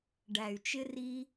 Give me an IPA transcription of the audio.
ɖ æ˨ y̯ t͡ʃ ɪ˧ r i˧

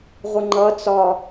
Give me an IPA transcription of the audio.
ʁʷ ə ŋ͡ǃ ʌ t͡s ɒ

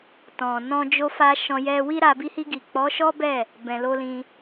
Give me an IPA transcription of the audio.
t ɔ̃˨ n ɔ̃˧ d͡ʒ o˧ f a˧ ʃ ɔ̃˧ j ɛ˧ w i˦ ɾ a˧ b i˧ h i˧ ɡ i˨ k͡p ɔ˨˦ ʃ ɔ˦ b ɛ˦˨ | b ɛ̃˨ l o˧ l ĩ˧

